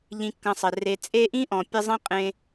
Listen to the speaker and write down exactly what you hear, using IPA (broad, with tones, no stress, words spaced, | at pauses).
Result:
ʎĩ˨kːɐ̃˨sˤɘ˩re˨ t͡sʼe˦ʔĩ˥ ʔɔ̃˩pʲɘ˦zˤĩ˥ qʼẽ˥